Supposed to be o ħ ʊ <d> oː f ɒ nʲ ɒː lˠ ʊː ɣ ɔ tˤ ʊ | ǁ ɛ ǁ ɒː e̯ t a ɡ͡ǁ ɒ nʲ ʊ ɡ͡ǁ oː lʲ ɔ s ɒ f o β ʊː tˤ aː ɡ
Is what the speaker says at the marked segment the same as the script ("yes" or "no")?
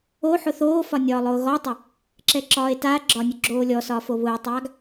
no